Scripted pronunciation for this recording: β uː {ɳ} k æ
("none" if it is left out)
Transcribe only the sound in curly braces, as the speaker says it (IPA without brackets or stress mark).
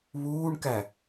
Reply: ɳ